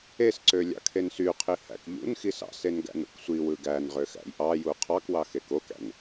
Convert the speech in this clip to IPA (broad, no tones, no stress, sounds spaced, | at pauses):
e s ǀ ø lʲ ɑ̰ kʰ e n s y qʰ i h æ̰ k ʎ ṵ n x i s ɑ̰ s e n ɡ æ̰ n ṵ k sʷ i w ɯ ɡ æ n ʁ ø x æ̰ j ʔ ɑ j u qʰ ɑ k w ɑ x e k o k æ̰ n